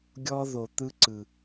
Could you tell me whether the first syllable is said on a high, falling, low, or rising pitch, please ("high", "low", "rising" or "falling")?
high